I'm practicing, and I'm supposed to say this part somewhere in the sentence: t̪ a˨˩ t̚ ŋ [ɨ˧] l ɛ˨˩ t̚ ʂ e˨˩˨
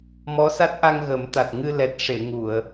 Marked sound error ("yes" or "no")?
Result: no